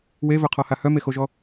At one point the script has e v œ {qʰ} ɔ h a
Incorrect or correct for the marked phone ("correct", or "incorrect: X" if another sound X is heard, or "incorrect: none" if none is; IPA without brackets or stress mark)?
correct